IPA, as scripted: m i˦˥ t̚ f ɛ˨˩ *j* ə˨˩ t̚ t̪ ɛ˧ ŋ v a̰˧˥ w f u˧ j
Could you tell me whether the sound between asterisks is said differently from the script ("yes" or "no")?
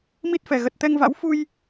yes